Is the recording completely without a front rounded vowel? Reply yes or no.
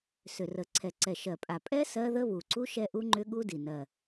no